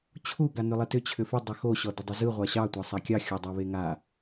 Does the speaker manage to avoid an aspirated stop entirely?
no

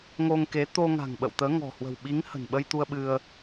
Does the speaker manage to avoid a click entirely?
yes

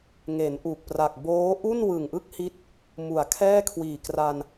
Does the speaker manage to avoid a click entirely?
yes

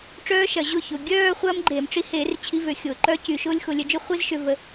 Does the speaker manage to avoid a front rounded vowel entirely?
no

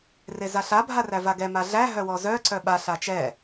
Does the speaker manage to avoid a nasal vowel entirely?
yes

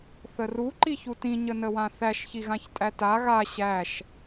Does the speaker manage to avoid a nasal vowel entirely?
no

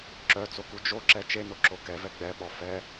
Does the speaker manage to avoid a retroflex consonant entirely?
yes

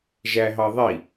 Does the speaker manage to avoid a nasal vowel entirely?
yes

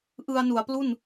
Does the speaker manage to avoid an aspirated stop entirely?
yes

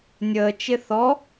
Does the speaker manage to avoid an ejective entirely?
yes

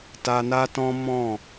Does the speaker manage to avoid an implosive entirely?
yes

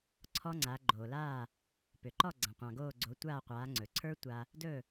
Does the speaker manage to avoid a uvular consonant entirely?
no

